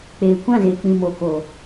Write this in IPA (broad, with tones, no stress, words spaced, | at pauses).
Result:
k͡peː˨kʷã˦˨ze˨ k͡pĩ˨mo˨ko˨